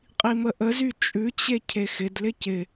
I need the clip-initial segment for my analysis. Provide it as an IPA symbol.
qʼ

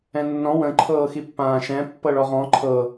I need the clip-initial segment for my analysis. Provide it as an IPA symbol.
ɛ̃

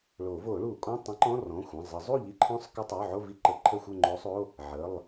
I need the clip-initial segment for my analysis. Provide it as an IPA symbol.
ɭ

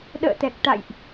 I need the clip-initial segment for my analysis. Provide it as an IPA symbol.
ɗ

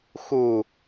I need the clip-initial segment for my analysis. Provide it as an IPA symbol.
x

